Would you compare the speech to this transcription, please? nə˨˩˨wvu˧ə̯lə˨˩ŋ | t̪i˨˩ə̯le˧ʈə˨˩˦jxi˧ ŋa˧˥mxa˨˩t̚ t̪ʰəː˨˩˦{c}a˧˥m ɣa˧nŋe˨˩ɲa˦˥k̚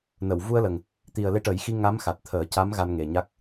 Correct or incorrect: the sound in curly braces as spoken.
correct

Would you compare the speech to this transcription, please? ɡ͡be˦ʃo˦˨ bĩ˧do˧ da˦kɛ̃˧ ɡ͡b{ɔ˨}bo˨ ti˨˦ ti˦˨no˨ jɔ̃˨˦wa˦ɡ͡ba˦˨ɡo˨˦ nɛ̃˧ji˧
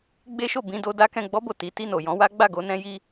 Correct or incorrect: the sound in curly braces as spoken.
incorrect: ɔ˧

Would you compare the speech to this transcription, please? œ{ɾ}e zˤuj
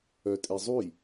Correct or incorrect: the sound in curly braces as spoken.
incorrect: tʼ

